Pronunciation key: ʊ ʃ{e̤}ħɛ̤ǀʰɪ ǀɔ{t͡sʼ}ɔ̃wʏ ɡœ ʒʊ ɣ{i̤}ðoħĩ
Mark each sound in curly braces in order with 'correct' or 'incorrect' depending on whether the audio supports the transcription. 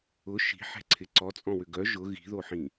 incorrect: i̤, correct, correct

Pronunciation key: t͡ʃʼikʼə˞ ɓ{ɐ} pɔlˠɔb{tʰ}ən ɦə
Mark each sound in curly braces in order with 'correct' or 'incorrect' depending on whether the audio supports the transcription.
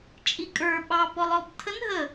incorrect: ɑ, correct

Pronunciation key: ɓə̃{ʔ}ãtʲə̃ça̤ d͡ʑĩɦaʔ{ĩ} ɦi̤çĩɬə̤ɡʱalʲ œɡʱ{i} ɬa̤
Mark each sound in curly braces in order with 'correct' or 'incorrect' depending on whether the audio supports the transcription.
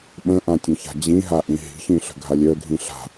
correct, correct, incorrect: ĩ

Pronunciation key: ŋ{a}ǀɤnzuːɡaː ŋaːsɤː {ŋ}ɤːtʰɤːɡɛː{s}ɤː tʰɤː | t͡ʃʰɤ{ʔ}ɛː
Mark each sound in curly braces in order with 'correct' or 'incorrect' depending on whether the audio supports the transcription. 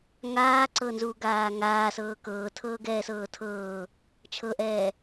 incorrect: aː, incorrect: k, correct, correct

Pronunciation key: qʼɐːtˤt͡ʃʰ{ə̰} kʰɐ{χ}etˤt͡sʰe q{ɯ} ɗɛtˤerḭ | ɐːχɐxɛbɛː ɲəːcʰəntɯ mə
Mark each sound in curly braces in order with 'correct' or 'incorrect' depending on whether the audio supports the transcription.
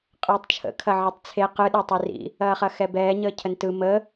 correct, incorrect: ʕ, correct

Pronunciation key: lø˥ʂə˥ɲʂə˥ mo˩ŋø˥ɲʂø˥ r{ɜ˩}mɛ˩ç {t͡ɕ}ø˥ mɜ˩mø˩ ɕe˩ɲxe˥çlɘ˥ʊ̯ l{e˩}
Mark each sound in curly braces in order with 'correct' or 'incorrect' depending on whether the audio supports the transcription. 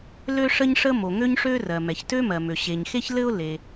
correct, incorrect: t, correct

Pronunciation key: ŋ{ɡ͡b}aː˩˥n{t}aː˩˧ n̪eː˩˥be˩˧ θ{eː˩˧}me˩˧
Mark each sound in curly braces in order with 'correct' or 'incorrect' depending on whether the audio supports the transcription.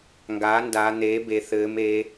incorrect: ɡ, incorrect: d, incorrect: ɘː˩˧

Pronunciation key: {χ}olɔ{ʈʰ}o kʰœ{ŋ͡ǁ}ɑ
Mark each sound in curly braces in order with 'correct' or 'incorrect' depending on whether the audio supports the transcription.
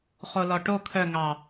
correct, incorrect: ʈ, incorrect: ŋ

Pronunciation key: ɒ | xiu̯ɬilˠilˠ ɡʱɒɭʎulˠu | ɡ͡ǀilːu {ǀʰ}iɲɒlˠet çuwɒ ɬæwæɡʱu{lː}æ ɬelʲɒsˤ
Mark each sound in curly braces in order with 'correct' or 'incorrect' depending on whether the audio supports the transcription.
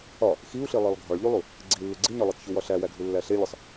incorrect: ɡ͡ǀ, correct

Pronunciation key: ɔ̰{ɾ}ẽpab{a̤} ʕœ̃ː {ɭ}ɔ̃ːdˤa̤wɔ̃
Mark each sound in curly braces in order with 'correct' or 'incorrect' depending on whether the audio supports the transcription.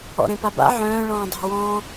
correct, incorrect: a̰, correct

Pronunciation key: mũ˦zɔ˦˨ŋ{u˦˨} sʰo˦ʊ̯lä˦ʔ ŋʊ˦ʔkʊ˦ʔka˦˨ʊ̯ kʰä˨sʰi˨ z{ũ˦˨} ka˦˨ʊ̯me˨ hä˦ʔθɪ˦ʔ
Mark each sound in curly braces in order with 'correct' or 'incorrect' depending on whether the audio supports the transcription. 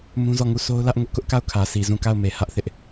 correct, correct

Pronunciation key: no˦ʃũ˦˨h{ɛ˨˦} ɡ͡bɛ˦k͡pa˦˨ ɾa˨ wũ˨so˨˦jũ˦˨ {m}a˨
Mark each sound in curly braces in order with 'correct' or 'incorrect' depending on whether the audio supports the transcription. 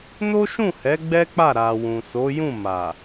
correct, correct

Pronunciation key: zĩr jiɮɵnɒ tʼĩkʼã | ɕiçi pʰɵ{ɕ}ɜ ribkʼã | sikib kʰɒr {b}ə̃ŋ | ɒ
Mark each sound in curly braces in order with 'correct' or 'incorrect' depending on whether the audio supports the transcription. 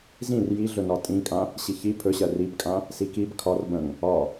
correct, correct

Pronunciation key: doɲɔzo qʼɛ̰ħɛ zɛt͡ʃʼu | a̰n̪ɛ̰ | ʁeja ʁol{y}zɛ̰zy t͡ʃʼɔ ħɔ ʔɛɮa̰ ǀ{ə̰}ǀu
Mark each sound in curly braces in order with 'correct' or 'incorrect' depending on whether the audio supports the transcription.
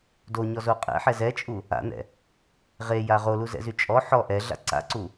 incorrect: u, incorrect: a̰

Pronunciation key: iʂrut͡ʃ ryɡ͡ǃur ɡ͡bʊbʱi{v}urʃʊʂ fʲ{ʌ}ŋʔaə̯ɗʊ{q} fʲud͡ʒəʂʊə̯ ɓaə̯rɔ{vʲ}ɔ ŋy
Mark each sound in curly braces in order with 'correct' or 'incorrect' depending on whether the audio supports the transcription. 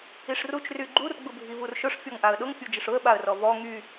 correct, incorrect: ɔ, incorrect: ŋ, incorrect: v

